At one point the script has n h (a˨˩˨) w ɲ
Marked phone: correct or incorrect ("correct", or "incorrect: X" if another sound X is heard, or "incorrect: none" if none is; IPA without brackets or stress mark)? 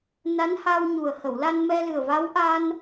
incorrect: a˧